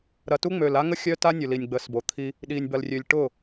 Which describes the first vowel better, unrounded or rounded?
unrounded